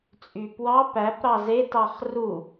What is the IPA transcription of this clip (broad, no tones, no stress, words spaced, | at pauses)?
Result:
t͡sʼypwɑ pæp ɾɑze tɑχru